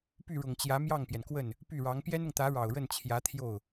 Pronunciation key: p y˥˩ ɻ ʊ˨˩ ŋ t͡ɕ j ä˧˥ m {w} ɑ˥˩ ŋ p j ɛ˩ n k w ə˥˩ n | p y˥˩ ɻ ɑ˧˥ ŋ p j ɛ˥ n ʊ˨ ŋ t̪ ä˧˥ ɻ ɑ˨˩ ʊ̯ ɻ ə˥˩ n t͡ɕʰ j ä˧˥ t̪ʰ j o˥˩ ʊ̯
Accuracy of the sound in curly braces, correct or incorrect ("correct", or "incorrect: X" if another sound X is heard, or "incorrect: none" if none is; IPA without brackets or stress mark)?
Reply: incorrect: j